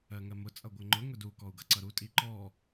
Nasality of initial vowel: oral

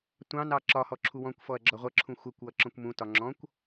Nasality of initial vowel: nasal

